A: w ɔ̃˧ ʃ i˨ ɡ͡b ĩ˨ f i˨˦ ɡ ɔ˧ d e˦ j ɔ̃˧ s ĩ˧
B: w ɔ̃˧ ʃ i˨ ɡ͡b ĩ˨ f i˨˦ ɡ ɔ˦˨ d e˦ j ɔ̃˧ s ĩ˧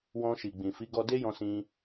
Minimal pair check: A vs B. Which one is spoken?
A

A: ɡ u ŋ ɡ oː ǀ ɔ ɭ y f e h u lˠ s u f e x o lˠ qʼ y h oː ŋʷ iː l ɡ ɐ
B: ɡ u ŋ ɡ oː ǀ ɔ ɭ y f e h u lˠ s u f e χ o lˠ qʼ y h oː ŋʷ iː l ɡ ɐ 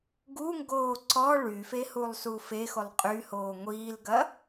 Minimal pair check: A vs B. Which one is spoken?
A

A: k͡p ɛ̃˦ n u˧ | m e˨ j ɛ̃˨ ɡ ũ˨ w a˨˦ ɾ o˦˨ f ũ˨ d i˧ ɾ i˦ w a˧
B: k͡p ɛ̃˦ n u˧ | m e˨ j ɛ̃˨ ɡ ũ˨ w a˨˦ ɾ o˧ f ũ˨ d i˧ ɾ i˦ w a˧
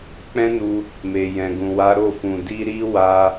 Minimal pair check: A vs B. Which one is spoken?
A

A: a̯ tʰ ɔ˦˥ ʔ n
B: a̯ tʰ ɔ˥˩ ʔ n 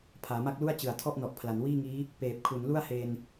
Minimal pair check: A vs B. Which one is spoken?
B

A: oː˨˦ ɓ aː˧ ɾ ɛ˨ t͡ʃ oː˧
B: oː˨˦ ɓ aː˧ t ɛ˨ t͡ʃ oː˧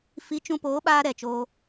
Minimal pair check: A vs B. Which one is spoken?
A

